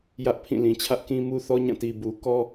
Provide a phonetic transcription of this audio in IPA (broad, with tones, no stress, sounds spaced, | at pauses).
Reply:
j ä˦ ʔ pʰ ĩ˦˨ l ĩ˨ t͡ɕʰ ä˦ ʔ k ĩ˦ m u˦ θ ɔ˦ ɲ ã˦˨ t i˨ b u˨ k ɔ˦